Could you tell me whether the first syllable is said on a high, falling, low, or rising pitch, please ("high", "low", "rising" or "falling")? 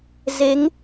rising